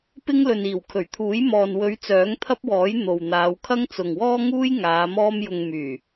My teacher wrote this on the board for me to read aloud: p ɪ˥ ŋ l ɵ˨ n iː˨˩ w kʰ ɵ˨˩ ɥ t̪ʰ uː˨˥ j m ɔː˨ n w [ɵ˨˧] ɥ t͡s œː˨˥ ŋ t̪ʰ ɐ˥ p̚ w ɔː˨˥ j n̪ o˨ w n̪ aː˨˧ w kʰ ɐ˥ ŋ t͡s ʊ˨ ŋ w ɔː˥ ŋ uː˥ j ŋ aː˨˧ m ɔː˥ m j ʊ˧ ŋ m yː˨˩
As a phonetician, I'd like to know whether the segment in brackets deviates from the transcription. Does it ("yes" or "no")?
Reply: no